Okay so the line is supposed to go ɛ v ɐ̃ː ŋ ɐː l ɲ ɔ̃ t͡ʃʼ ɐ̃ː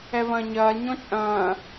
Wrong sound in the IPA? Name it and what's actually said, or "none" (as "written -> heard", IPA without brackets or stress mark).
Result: ŋ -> ɲ